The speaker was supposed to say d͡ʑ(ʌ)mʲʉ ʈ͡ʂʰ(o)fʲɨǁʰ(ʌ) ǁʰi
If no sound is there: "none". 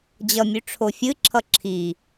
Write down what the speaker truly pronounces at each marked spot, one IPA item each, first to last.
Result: ʌ, o, ʌ

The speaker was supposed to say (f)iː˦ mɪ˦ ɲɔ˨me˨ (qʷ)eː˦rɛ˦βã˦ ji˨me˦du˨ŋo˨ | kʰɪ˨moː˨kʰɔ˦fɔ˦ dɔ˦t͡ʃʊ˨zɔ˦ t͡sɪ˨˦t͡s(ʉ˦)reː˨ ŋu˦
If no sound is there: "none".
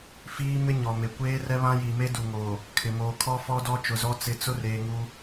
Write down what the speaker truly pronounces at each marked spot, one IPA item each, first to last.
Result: f, kʷ, ʊ˦

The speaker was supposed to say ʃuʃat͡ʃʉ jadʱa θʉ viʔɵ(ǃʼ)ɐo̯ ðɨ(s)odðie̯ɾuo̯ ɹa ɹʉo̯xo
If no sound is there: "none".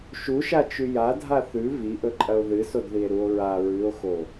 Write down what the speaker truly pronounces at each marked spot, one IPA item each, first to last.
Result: ǃʼ, s

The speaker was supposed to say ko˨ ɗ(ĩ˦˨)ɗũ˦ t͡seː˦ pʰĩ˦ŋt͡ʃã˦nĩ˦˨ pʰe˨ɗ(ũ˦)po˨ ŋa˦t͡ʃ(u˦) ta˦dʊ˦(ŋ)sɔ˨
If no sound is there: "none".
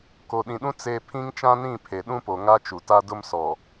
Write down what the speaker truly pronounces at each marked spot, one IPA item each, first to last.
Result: ĩ˨, ũ˦, u˨, m

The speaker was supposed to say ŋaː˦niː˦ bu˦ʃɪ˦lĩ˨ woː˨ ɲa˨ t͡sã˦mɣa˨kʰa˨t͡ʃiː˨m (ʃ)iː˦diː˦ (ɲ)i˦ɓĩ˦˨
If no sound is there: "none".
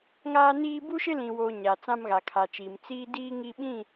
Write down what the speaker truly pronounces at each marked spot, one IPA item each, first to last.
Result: t͡s, ŋ

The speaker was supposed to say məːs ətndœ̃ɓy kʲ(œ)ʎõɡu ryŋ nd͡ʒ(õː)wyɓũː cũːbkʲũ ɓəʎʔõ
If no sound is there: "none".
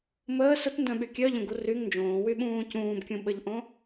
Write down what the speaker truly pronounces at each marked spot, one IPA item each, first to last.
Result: œ, õː

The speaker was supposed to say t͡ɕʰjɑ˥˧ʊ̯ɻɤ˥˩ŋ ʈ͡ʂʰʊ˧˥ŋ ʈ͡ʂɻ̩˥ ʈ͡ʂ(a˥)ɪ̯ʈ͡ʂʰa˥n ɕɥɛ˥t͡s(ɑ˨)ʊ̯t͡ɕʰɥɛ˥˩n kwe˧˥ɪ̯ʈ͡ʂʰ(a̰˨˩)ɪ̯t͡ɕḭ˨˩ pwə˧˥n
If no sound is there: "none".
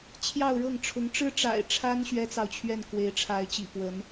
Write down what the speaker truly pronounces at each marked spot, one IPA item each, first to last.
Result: a̰˨˩, ɑ˨, a˧˥

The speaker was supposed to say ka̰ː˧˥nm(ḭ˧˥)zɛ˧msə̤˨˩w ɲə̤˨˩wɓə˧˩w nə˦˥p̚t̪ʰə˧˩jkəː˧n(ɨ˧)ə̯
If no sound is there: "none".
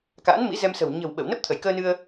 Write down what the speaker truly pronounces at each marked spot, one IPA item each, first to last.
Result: ḭ˧˥, ɨ˧

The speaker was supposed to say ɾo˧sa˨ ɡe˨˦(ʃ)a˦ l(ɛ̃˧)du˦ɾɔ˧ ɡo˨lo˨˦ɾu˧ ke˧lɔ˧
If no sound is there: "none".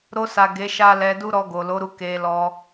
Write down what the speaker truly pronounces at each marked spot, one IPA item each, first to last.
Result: ʃ, ɛ˧

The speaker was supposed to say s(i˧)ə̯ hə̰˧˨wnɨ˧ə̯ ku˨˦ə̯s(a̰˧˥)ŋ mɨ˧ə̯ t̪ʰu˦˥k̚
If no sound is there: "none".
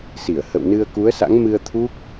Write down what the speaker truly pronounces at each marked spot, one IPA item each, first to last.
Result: i˧˩, a̰˧˥

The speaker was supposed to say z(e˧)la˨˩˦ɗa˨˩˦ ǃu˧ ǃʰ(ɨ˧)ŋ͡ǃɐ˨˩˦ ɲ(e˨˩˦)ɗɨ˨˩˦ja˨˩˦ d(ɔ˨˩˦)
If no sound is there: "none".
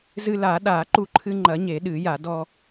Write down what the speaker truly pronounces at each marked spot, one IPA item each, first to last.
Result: ɨ˧, ɨ˧, e˨˩˦, ɔ˧

